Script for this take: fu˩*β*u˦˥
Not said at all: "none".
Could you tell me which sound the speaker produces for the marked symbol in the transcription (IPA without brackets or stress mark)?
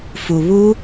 β